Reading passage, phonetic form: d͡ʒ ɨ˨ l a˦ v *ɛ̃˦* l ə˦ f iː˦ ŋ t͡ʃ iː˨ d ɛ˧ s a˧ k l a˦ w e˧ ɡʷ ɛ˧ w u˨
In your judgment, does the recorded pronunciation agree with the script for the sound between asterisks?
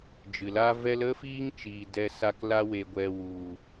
no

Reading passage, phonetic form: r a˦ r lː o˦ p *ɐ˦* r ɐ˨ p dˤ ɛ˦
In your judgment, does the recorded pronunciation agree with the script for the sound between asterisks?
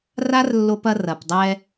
yes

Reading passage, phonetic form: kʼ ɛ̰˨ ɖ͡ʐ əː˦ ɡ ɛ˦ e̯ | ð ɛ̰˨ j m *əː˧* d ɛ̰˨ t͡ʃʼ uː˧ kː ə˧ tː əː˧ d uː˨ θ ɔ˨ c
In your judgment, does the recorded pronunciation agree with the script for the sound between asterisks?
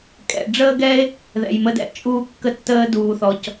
no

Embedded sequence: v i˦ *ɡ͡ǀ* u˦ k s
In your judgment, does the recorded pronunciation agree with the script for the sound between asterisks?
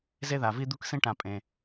no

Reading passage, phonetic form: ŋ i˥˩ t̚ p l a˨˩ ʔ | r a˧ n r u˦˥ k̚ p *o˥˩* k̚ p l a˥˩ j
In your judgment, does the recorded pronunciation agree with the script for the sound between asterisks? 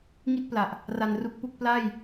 no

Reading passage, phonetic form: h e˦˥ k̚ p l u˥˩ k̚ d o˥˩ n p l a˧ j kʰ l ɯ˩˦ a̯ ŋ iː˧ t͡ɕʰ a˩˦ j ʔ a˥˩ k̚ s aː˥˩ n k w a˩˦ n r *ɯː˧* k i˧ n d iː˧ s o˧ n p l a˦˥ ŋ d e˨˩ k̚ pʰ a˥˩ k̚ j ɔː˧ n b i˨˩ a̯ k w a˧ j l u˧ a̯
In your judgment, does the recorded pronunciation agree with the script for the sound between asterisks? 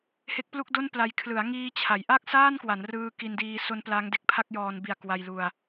yes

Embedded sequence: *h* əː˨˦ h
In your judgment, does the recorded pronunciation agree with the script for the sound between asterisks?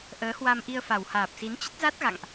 no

